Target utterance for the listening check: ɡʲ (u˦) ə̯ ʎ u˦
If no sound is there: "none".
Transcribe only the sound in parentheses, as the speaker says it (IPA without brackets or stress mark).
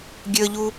ø˦